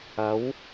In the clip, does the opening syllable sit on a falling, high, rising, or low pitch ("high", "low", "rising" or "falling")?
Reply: rising